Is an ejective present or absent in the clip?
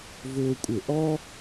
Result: present